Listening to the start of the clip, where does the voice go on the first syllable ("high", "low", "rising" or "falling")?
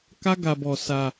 high